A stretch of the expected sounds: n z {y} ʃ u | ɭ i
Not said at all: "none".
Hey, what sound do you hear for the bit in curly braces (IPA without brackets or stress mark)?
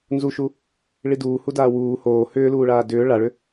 u